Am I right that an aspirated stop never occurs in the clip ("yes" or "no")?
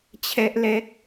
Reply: no